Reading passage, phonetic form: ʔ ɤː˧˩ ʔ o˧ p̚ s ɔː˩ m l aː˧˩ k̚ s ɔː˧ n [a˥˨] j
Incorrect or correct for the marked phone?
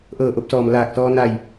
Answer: incorrect: a˧˩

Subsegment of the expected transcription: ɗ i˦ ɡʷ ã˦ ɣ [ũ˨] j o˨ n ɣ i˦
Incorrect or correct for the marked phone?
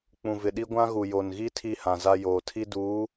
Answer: incorrect: u˨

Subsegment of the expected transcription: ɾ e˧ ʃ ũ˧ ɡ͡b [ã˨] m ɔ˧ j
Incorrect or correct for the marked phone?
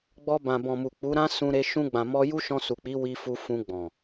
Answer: correct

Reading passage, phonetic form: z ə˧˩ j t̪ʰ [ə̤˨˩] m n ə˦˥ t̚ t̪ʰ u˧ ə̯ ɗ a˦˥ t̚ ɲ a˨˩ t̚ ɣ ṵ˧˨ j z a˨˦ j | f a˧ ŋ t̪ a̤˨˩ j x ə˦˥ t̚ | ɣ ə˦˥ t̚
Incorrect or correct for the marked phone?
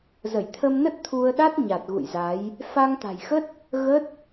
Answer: incorrect: ə˧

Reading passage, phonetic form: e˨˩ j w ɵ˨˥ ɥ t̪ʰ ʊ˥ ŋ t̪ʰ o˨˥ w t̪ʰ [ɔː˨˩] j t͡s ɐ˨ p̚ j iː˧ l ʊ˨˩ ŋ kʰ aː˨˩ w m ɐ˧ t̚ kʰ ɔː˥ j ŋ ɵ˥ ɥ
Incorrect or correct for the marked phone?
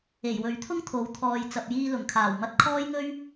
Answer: incorrect: ɔː˨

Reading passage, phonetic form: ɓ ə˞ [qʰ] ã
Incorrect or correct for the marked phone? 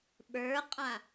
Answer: incorrect: qʼ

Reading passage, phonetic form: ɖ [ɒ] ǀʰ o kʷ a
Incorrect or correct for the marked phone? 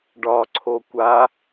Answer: correct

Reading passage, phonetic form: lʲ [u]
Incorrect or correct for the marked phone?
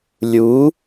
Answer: correct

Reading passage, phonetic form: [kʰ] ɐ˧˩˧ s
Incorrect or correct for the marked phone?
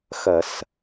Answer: incorrect: x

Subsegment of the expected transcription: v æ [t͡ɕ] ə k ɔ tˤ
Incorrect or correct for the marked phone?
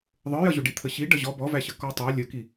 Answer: incorrect: ɕ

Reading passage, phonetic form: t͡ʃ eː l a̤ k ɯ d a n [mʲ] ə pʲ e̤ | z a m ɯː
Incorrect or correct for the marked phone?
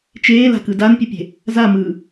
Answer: incorrect: pʲ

